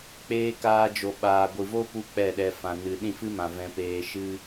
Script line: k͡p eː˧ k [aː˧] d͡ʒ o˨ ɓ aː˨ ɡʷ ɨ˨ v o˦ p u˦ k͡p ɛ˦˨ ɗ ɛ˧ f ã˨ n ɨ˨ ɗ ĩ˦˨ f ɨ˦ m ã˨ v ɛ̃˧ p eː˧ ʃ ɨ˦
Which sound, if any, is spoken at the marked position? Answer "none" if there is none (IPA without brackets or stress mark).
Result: aː˧